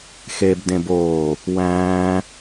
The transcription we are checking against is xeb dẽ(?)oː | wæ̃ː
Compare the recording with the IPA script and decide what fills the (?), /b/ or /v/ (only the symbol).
b